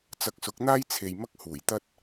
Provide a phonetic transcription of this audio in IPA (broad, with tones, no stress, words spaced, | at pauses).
t͡sɐ˧k̚sʊ˨˥k̚n̪aː˥jt͡sʰe˨j mɐ˥k̚huː˨˩jt̪ɐ˥t̚